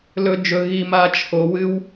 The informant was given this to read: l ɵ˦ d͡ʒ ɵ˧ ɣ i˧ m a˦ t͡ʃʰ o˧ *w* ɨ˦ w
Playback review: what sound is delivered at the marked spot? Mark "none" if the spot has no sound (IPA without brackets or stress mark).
w